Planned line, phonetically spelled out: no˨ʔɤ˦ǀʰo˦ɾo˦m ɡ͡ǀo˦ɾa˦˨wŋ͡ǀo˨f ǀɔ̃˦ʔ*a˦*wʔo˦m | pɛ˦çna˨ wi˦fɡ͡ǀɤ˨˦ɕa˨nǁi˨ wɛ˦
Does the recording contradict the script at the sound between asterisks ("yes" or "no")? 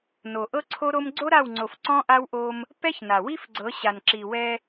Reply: no